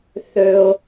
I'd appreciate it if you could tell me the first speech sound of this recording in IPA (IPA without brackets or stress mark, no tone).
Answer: θ